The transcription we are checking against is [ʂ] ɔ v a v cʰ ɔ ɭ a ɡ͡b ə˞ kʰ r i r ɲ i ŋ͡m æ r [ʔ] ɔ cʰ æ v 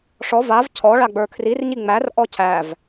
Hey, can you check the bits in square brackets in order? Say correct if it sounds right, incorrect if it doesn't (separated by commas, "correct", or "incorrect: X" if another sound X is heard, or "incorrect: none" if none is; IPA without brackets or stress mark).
correct, correct